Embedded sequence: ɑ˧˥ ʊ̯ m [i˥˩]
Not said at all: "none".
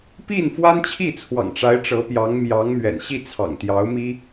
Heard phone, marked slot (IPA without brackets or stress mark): i˥